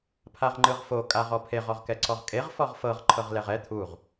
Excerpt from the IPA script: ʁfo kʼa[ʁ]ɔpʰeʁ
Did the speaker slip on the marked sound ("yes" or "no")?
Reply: no